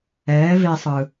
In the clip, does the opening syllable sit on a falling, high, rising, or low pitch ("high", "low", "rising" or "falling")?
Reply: rising